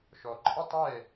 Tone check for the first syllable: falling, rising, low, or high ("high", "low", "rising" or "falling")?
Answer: low